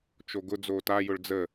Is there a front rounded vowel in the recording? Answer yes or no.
no